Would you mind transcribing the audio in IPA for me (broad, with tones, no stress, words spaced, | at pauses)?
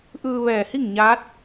ʔɯː˧ʋɛː˧˩hi˥˨ŋ ɲaː˧˥t̚